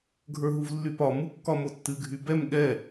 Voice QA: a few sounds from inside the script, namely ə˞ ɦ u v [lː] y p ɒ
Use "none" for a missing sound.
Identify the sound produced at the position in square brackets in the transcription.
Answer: lː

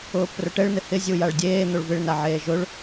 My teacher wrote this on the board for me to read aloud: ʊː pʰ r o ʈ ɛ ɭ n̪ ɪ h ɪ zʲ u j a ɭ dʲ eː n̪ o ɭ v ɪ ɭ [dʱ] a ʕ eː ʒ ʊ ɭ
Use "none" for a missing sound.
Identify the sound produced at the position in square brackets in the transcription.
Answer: n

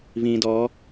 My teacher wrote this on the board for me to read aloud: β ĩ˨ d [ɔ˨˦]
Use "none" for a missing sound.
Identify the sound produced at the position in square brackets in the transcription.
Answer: ɔ˨˦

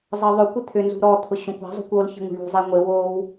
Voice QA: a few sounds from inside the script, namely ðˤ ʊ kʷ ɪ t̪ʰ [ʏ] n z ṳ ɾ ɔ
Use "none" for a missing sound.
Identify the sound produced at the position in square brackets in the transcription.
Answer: ʏ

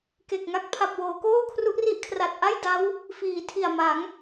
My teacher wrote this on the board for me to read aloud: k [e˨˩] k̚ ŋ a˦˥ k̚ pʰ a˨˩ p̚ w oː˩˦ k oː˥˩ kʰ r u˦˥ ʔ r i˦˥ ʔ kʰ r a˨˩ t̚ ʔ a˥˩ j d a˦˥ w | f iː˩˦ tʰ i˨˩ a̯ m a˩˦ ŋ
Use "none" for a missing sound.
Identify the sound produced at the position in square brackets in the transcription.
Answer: e˨˩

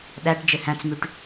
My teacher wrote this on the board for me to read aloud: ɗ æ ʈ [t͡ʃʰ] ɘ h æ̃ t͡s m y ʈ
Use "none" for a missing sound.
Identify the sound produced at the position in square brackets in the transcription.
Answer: d͡ʒ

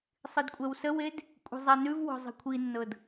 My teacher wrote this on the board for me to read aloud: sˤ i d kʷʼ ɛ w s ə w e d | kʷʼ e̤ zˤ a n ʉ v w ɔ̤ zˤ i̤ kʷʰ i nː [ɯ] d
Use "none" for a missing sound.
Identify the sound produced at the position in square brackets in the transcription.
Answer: ɤ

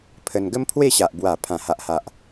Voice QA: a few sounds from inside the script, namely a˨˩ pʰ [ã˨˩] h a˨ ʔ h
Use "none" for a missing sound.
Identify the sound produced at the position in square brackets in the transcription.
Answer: ã˨˩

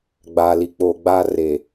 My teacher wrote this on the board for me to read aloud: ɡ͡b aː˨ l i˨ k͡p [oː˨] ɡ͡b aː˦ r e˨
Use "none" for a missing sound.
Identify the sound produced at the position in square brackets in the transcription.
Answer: oː˨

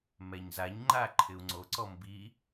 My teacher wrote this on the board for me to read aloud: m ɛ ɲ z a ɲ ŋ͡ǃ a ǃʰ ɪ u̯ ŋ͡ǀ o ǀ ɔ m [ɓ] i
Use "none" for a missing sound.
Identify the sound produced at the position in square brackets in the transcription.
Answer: b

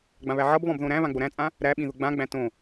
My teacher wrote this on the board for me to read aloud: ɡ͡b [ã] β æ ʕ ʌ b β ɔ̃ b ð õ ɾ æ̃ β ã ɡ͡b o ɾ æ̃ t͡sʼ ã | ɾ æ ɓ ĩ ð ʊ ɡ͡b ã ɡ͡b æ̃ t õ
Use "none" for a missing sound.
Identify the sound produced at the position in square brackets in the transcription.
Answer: ã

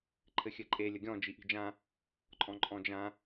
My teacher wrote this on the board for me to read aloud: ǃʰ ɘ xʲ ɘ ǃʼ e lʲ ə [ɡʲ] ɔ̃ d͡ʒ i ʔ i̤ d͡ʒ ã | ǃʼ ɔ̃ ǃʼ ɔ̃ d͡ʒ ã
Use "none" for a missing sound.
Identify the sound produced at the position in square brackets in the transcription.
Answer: ɡʲ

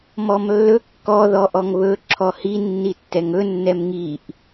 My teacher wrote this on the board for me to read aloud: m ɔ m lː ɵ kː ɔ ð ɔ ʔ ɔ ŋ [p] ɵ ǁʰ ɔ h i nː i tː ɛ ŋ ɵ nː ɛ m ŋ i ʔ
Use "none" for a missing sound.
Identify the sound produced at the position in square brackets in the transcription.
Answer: β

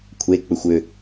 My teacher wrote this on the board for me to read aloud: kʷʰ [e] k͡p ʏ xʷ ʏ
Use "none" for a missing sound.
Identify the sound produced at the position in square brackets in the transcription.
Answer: e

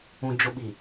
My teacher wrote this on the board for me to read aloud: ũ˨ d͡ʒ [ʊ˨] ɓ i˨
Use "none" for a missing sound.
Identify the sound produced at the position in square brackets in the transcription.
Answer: ʊ˨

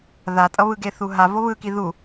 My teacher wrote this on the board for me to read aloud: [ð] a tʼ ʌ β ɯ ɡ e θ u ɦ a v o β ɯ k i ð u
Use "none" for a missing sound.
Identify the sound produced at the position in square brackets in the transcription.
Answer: ð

